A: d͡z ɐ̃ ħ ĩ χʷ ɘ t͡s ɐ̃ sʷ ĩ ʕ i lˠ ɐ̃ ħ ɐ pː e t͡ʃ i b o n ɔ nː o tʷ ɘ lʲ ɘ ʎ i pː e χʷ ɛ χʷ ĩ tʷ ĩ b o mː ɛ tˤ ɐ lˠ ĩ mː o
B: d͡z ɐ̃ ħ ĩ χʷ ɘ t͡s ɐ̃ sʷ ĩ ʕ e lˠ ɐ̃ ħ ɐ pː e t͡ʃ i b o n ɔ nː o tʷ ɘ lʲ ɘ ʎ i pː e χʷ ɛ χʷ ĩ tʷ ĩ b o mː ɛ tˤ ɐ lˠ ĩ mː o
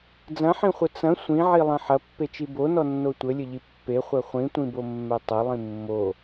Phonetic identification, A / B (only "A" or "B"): A